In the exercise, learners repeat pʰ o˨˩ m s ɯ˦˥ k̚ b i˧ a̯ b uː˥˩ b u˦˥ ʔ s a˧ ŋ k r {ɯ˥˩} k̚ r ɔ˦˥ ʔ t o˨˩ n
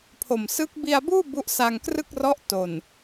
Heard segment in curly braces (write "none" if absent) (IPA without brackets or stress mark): ɯ˥˩